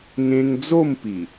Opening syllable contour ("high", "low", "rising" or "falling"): high